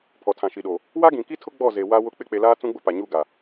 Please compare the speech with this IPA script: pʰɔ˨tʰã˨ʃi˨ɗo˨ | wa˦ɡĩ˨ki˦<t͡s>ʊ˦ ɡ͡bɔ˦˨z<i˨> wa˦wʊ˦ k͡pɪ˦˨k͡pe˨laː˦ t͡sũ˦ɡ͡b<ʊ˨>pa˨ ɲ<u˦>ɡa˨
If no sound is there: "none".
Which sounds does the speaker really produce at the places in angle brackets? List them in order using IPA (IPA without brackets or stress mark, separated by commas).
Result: tʰ, e˨, ʊ˦, u˦˨